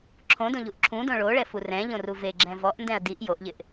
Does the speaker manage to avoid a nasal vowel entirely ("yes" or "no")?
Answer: no